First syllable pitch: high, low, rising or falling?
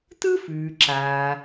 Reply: high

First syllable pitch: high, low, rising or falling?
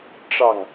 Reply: falling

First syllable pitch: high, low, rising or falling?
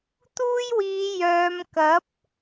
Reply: high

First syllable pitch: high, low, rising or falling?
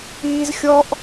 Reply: high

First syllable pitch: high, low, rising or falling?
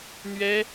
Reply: high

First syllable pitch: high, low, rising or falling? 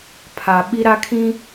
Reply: low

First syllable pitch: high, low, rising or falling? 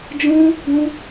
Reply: high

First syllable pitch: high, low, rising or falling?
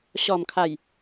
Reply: low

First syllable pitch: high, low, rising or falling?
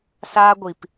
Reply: high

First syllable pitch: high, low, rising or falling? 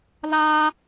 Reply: high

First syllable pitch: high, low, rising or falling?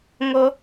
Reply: high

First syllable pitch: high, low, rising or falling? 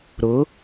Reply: rising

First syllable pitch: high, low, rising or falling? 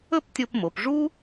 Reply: falling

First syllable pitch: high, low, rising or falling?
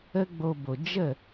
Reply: high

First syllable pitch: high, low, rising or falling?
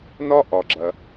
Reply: high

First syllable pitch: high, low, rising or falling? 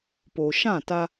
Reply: low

